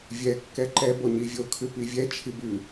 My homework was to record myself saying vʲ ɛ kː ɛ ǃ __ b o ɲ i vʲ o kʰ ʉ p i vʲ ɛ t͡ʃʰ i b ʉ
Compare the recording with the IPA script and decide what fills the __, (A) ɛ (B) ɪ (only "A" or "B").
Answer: A